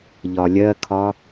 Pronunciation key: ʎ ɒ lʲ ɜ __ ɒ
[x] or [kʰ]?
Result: kʰ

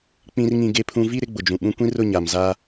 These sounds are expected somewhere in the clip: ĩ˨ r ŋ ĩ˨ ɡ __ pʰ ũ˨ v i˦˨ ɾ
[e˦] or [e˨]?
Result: e˨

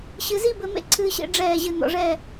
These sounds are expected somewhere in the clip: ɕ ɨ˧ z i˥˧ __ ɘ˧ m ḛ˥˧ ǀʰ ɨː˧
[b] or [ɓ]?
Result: b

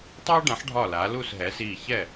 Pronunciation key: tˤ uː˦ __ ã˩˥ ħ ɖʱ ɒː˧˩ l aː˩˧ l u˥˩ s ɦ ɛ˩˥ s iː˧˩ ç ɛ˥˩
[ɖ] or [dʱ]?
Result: ɖ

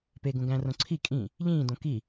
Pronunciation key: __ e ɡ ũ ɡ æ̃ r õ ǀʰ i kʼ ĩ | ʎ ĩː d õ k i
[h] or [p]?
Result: p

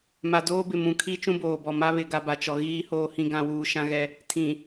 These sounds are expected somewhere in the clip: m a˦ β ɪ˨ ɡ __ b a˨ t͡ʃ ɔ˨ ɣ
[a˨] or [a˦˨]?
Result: a˨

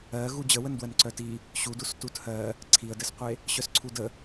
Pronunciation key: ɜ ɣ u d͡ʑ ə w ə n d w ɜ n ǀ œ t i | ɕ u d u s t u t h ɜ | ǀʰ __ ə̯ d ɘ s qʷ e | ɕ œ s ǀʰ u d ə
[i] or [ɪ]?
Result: i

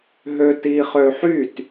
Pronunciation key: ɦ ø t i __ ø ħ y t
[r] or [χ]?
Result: χ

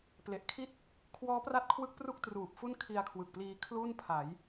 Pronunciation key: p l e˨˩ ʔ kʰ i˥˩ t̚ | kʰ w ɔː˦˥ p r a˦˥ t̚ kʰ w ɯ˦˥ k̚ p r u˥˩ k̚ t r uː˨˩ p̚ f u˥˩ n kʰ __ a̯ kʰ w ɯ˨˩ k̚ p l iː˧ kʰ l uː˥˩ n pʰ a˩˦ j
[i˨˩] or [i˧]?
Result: i˧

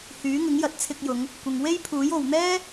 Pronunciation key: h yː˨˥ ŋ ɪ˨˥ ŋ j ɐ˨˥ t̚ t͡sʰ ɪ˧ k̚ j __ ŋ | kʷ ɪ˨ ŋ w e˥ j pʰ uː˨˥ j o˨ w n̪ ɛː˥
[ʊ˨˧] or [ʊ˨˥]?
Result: ʊ˨˧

